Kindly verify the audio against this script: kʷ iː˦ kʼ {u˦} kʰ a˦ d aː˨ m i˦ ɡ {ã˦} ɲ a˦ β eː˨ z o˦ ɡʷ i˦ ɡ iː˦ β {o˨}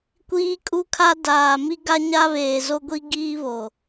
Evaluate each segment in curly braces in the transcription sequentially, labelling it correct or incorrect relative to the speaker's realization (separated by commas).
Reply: correct, incorrect, correct